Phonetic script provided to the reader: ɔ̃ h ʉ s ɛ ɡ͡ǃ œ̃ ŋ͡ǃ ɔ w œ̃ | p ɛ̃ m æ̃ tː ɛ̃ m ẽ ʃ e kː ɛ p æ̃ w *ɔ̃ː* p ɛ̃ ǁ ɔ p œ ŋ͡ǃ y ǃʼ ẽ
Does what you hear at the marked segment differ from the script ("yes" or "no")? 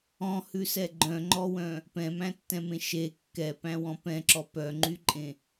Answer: yes